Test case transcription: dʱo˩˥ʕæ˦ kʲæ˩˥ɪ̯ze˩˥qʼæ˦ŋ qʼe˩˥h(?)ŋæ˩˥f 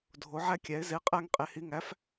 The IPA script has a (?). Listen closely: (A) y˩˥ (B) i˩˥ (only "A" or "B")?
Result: B